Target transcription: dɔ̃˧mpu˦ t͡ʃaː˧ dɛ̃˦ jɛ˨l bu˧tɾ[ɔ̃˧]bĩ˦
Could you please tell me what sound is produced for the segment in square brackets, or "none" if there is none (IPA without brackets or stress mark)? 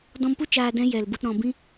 ɔ̃˧